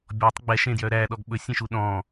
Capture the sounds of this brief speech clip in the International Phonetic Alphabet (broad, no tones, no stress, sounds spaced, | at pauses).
bʲ ɔ tˤ ɡ͡b ɛ ʃ ẽ d j œ ɾ æ ɗ ɔ ɡ ɓ ɵ sʲ ẽ ʃ u ɗ ɔ̃ː